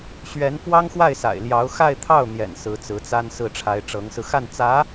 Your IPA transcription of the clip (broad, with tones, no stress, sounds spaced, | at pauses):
ɕ ɥ ɛ˧˥ n f w ɑ˥ ŋ x w a˥˩ ɪ̯ s a̰˨˩ ɪ̯ l j ɑ˧˥ ʊ̯ x a˥˧ ɪ̯ t̪ʰ ɑ˥˩ ʊ̯ n̪ j ɛ̰˨˩ n s ɹ̩˧˥ t͡s ɹ̩˧˥ t͡s a˥ n s ɹ̩˥˩ ʈ͡ʂʰ a˧˥ ɪ̯ ʈ͡ʂ ɤ˧˥ ŋ s ɹ̩˧ x a˥˩ n t͡s ä˧˥